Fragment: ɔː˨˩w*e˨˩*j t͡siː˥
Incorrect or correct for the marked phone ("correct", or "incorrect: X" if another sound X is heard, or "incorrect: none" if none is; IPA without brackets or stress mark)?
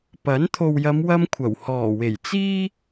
correct